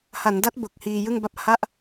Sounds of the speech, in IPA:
ha˩˦nda˦˥t̚ bo˨˩k̚hiː˧ jɯ˥˩ŋba˥˩p̚ ha˥˩ʔ

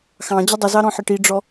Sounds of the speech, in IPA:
xɑ̃ d͡ʑədˤəzɑ ɾɔ̃ħəʈiɖ͡ʐɔ

